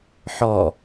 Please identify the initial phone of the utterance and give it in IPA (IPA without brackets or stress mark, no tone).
ħ